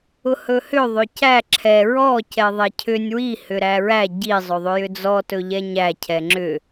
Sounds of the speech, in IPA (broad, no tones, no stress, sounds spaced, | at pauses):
ʊ h ɵ h ʏ ðˤ ʏ c æ ǁʰ ɛ ɹ ɔ c ɛ ðˤ ɛ cʰ ʏ nʲ w i h ʏ ɾ æ ɹ æ ɟ i zˤ ɵ ðˤ ʏ j ʏ d͡z ɔ t ɵ ʎ ɛ ɲ æ cʰ ɛ ŋ͡ǁ ʏ